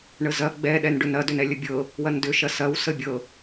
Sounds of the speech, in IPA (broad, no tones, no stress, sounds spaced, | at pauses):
ɳ ə z ɐ ɡ͡b ɛ ɗ ɛ n ɖ ʏ n ɐ d ʏ n ɛ lʲ ə bʲ ɤ | w ɐ n d ʏ ʃ ɐ s ɐ w s ə bʲ ɤ